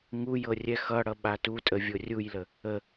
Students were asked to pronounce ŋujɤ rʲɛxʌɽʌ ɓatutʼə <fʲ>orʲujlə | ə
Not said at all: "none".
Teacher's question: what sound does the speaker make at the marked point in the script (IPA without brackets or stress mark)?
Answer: vʲ